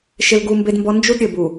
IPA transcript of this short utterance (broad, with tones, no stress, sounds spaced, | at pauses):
ʃ ɪ˦ l ɡ u˦ m b e˦ d m b ɔ˦ n d͡ʒ u˦ d ɾʲ ɘ˨ b u˨